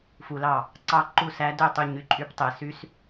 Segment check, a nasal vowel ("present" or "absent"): absent